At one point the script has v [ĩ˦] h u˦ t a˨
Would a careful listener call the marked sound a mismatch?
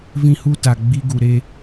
no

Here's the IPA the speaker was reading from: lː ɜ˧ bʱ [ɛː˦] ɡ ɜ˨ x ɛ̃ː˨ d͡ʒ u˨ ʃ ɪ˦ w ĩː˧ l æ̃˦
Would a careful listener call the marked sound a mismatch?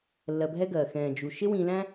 yes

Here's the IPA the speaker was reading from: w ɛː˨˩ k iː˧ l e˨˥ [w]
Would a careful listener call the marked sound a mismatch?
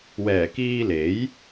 yes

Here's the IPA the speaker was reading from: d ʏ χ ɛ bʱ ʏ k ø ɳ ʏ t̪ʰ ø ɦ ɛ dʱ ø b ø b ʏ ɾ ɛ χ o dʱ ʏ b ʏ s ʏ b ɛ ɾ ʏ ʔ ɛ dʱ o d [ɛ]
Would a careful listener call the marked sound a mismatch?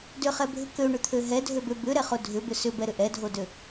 yes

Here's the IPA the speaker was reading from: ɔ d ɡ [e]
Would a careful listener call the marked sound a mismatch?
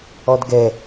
yes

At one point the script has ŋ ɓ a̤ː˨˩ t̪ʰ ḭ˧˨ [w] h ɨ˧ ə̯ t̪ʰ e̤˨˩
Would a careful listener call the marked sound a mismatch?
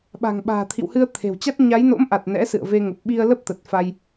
no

